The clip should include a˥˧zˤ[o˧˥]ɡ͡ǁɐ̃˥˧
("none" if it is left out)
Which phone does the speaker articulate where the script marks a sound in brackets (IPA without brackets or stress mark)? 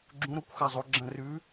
o˧˥